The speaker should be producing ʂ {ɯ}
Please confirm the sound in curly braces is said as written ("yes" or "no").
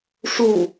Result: no